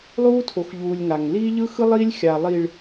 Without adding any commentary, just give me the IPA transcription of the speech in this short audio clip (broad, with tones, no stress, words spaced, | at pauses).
lˠuː˦tʰo˨xʎuː˨lʲ ŋa˨ŋ liː˦ʎɯ˦xɯ˦ lˠiː˦lʲxʲa˨lˠi˨ɭ